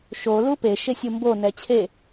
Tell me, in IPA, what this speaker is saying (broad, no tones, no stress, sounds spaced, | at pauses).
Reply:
ʃ o l u p e ʃ e sʲ u m b o n ɛ t͡ɕʰ e